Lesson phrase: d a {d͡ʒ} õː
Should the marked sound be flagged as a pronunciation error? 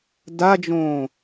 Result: no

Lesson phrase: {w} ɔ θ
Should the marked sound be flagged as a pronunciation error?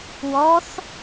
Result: no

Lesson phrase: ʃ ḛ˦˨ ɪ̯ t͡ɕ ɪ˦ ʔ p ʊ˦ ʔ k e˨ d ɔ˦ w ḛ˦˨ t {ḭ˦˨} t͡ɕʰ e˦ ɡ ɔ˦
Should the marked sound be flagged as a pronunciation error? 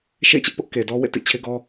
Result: no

